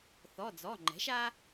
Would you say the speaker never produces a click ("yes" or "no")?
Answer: no